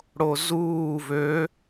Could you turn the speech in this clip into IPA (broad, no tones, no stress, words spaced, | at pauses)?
ɽozuː vø